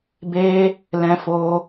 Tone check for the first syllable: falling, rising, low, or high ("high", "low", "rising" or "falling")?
high